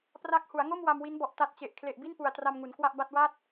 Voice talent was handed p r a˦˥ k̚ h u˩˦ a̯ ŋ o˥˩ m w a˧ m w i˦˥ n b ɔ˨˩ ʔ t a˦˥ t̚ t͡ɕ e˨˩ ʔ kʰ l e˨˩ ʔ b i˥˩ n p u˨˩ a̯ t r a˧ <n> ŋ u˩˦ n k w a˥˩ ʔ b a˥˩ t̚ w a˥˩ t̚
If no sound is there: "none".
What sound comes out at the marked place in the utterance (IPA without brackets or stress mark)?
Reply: m